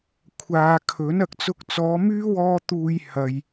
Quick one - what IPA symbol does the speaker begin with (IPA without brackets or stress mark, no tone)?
kʷʰ